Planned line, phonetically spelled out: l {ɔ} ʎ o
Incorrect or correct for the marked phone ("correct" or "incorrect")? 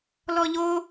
correct